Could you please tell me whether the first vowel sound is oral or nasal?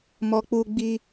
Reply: oral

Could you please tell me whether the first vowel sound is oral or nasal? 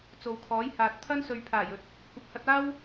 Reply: oral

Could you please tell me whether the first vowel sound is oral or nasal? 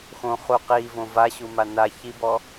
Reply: nasal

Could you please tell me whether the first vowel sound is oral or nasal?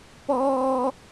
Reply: oral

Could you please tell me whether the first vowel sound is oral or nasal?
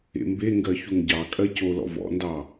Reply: oral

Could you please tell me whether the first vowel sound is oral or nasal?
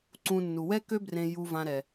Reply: nasal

